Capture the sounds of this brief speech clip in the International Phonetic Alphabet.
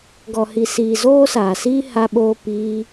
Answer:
ɡɔ˨hi˨ siː˨ zoː˦saː˨siː˦ ha˧ɓoː˧ piː˧

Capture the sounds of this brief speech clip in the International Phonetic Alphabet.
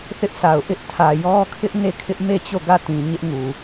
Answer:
θɪ˦ʔsʰa˨ʊ̯ ʔɪ˦ʔtʰä˨ jɔ˦kʰɪ˦ʔne˦˨kʰɪ˦ʔ me˦˨t͡ɕo˦˨ɡä˦˨tĩ˨ ɲɪ˦ʔŋu˨

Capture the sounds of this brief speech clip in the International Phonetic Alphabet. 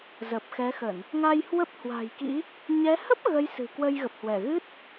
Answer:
zə˨˩p̚xɛ˨˦xə˧˩˨n | ŋa˧jhwə˦˥p̚hwa̤˨˩jkḭ˧˥ | ɲɛ˨˦ hə˦˥p̚ ɣə˨˦j sɨ̤˨˩ kwə˧jɣə˨˩p̚hwɛ˧˩ ɣɨ˦˥t̚

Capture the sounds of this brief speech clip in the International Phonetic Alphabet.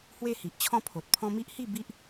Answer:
hwe˥˧hi˨ʔt͡ɕʰɔ̃˥˧pʰo˨t̚ pʰɔ̃˦ mi˦ʔhi˥˧ bi˦ʔ

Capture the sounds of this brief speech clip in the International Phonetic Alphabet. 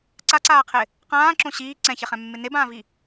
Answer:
ǀaǀaːqʰɪ | qãːǁõ ɕiː ǀɛ̃çɛχɛ̃mːɪ nebãːvi

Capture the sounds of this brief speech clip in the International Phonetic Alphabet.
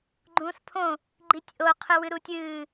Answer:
ɡ͡ǃũːspʰõ | ɡ͡ǃitʲʔo qʰɨwɨɾutʲɨː

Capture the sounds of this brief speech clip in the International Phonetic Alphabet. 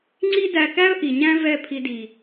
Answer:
ŋ͡ǀi˦ dæ˧kæ˦ə̯ ʔi˨ɲæ̃˦ vɛ˦˨pʰi˧di˨

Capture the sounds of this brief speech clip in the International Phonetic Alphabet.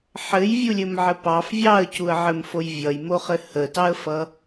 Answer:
ħɘjvʲulʲɘmʕɘ pɑf vʲɑə̯cuə̯ʕɘmfoj vʲʌjmoχɘ hətɑə̯fʌ

